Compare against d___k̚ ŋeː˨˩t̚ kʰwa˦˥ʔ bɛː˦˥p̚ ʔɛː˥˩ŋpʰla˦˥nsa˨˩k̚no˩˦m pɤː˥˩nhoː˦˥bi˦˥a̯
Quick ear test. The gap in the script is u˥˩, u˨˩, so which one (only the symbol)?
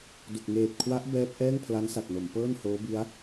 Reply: u˨˩